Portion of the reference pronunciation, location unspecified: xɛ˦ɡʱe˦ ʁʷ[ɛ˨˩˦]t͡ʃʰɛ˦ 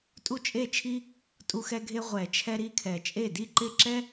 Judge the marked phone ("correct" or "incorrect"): correct